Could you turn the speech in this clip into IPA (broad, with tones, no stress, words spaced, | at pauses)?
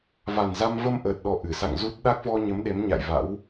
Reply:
va˨˩nza˧m və˧mʔəː˨˩t̚ ɗɔ˧ʔɨ˧˩ sa̰˧˨ŋzu˦˥t̚ ɗa˦˥k̚vɔ˧ɲə˨˦m ɗe˨˦mɲa̰˧˨jva̰˧˥w